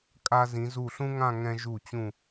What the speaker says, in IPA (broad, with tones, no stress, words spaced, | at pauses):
kʼa˧ zĩ˩˧zu˧˩ɬũ˥ŋã˥˧ ŋɛ̃˧ʒu˧˩t͡ɕũ˧˩